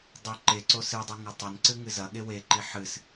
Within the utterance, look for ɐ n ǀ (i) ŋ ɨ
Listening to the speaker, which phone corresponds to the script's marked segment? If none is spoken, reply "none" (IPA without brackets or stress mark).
ɨ